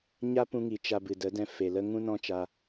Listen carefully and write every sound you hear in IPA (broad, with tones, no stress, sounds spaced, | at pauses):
ɲ a˦ p ũ˧ ŋ i˨ t͡ʃ a˧ b ɨ˨ d ə˨˦ d ɛ̃˧ f e˨ l ə˦ ŋ ũ˦ n ɔ̃˦ t͡ʃ a˧